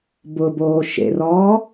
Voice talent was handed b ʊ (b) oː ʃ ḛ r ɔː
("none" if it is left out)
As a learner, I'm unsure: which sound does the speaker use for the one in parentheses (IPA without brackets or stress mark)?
b